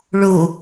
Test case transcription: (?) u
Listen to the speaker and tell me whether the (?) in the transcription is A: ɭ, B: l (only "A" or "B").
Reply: A